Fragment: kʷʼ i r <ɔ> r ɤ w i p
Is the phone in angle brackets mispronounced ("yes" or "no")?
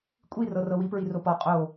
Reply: yes